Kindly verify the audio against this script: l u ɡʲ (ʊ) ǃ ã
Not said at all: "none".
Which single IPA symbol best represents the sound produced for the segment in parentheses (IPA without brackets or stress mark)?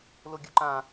u